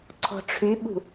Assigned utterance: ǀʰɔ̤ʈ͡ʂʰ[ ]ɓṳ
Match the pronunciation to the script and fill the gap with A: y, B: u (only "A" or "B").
A